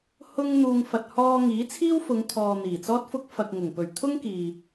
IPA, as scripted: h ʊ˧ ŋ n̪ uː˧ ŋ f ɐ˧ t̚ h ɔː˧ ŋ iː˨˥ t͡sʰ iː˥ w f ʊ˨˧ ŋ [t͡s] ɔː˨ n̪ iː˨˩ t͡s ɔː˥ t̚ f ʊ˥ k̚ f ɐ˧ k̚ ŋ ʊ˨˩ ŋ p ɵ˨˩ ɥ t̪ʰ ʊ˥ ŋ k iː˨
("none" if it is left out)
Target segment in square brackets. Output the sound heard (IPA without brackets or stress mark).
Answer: t̪ʰ